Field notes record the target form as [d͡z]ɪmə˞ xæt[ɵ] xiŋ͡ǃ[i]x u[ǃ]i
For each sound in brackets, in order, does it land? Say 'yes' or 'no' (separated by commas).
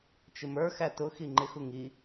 no, no, no, no